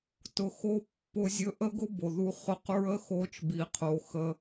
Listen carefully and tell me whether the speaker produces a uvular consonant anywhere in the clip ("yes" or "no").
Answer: yes